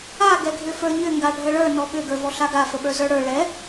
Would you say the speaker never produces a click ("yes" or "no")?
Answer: yes